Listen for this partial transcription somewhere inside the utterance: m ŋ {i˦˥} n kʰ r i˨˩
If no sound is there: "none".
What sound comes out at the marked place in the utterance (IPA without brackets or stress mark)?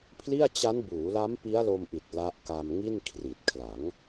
i˥˩